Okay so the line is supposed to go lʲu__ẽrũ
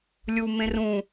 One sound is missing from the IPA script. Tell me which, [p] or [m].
m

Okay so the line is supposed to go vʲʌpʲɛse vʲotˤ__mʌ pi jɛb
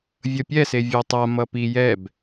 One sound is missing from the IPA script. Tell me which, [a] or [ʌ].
a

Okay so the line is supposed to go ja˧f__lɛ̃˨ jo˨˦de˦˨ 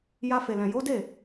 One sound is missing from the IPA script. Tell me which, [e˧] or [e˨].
e˨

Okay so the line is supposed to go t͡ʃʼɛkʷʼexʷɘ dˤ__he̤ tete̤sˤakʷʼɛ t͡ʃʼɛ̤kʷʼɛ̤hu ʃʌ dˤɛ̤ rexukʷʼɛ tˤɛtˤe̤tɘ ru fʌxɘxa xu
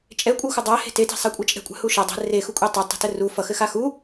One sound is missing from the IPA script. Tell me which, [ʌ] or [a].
a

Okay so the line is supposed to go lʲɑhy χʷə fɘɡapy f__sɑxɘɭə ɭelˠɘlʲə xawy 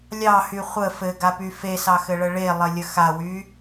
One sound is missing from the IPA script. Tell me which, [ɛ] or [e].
e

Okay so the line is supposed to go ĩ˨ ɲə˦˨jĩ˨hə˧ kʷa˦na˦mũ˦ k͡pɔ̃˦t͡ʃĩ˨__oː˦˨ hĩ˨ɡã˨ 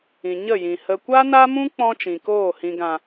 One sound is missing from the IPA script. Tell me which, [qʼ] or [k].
k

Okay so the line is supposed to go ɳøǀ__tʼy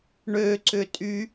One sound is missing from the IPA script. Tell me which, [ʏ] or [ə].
ʏ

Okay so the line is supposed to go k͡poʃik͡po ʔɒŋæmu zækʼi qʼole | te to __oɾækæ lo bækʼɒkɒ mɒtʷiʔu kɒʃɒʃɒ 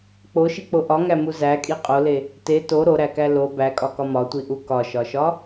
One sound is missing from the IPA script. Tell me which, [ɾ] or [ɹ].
ɾ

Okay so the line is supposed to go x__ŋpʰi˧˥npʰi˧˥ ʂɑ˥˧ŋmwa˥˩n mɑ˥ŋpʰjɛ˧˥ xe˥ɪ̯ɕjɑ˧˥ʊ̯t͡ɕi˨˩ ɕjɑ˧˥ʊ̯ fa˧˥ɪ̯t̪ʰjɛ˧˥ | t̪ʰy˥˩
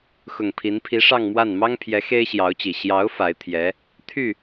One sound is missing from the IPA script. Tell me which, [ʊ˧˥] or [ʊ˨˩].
ʊ˨˩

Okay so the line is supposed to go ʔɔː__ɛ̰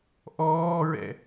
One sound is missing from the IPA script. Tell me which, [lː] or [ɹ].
ɹ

